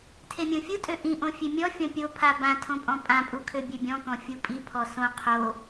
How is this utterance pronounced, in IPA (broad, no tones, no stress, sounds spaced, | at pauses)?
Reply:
tʰ e mʲ õ fʲ u tʼ ø ʔ ĩ ʔ õ fʲ e mʲ ɔ fʲ ɔ̃ pʲ o pʰ a b ã tʰ õ pʼ ɔ̃ pʼ ã pʼ u kʰ ø bʲ ø bʲ ɔ̃ k ɔ̃ fʲ u pʼ i pʰ ɔ s õ qʰ o